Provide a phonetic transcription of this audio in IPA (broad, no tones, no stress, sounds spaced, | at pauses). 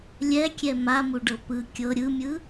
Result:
lʲ ɛ kʲ ɛ m a m u ɖ ɤ p ɯ kʲ ɤ ɾʲ ɯ mʲ ɯ